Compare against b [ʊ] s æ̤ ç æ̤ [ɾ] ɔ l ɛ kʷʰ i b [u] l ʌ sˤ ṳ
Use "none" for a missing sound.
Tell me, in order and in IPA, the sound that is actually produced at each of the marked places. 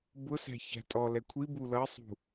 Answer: ʊ, tʼ, u

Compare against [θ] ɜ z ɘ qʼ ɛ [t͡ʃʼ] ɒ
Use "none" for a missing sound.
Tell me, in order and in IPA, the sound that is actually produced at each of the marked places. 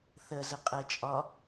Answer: θ, t͡ʃʼ

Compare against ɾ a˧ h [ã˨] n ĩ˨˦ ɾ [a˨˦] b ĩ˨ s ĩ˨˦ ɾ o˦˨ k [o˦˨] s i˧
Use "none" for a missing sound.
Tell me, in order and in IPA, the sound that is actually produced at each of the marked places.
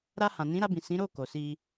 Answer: ã˨, a˧, o˨

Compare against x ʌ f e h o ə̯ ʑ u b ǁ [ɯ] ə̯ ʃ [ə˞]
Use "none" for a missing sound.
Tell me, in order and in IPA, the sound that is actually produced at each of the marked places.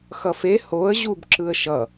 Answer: ɯ, ʌ

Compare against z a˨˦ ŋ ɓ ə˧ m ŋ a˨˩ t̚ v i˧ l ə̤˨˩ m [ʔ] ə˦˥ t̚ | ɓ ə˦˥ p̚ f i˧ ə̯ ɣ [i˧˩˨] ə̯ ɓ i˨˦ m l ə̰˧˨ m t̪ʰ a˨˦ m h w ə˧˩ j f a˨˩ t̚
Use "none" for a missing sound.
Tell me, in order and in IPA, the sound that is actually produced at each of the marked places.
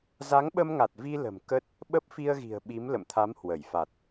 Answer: k, i̤˨˩

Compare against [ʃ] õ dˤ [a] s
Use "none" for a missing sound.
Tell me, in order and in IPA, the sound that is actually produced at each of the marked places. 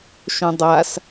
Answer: ʃ, a

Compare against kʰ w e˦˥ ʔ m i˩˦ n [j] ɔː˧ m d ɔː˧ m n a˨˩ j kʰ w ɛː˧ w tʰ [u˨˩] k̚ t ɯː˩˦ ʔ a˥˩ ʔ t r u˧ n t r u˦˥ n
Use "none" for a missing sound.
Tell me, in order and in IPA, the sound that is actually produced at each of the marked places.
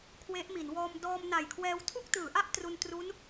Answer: w, u˥˩

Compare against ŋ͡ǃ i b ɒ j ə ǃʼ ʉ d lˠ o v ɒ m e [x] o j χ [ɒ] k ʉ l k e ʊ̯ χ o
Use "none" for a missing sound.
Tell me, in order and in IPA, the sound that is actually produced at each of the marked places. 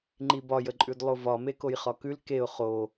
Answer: k, ɒ

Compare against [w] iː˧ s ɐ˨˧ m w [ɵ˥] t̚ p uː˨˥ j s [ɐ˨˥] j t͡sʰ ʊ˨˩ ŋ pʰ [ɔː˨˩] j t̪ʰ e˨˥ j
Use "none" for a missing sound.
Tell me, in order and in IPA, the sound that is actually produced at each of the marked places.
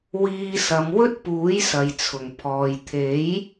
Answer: w, ɵ˥, ɐ˨, ɔː˨

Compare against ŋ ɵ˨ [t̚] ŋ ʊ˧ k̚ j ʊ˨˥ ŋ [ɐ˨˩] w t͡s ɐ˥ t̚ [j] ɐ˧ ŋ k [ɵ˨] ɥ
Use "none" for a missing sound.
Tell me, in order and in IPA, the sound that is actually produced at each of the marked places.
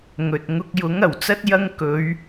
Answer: t̚, ɐ˨˩, j, ɵ˨˧

